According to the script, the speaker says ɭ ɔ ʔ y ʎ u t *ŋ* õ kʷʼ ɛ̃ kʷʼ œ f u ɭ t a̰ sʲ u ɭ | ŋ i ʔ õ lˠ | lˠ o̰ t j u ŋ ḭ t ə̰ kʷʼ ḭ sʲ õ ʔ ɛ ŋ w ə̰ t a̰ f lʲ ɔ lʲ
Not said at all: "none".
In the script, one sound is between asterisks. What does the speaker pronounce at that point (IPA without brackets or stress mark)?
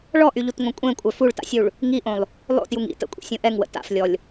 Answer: ŋ